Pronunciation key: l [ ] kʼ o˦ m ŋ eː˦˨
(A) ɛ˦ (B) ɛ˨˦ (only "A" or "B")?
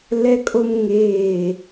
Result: A